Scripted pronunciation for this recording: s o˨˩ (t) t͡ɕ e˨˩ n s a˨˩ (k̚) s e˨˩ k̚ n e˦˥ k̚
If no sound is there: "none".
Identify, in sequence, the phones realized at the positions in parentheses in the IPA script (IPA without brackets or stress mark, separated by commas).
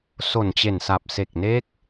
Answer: n, p̚